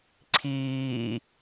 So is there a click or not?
yes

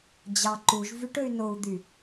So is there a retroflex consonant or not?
yes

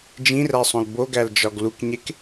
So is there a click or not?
no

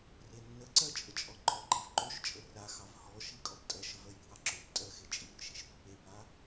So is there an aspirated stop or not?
no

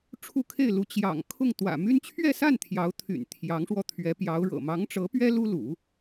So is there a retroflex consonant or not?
yes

